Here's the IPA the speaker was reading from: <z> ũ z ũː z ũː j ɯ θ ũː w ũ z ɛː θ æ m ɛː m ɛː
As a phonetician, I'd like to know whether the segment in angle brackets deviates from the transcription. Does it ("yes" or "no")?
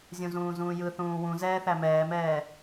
yes